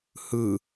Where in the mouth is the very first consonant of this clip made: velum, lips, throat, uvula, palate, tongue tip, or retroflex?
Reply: throat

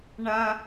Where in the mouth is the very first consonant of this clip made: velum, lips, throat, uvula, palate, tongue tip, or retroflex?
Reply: retroflex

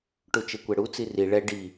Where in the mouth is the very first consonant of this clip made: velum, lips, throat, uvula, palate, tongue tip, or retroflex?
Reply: retroflex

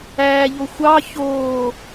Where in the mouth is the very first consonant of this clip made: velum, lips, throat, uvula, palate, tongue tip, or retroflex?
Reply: palate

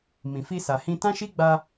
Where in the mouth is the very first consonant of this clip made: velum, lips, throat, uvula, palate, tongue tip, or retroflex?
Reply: lips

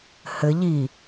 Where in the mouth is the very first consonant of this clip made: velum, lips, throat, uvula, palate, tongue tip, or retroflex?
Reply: throat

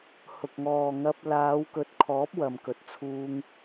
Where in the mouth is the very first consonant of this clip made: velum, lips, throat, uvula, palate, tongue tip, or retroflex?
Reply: throat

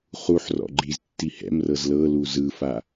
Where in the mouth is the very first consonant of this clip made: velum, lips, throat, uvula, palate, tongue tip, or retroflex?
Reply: uvula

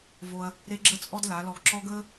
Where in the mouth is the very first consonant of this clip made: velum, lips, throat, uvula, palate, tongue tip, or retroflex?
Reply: lips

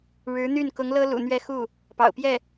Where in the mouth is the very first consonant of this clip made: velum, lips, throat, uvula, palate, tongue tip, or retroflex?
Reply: retroflex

